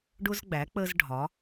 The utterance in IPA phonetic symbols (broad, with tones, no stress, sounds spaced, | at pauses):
ɖ ʊ˥ z ɡ͡b æ˩˥ k͡p ə˥ z ɖʱ ɒ˩˥